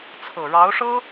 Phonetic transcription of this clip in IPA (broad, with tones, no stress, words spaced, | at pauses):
t͡sʰɤ˨˩ɻɑ˧˥ʊ̯ʂɤ˥